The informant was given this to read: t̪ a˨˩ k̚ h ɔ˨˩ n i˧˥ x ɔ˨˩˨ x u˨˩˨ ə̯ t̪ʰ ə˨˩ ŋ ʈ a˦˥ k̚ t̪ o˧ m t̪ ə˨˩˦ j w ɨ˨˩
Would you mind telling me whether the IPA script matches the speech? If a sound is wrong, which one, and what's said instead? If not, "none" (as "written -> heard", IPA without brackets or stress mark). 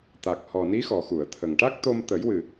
none